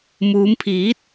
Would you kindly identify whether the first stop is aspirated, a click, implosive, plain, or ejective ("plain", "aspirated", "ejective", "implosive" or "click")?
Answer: aspirated